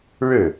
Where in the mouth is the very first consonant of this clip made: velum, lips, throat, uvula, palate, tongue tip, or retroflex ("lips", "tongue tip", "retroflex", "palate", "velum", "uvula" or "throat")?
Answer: retroflex